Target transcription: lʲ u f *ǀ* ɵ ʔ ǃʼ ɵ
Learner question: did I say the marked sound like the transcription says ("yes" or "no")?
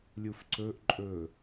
yes